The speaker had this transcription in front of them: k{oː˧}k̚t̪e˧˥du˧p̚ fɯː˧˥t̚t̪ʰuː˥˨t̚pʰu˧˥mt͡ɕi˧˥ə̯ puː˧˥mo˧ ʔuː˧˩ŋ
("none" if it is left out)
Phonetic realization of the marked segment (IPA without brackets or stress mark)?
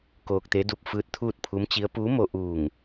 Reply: oː˧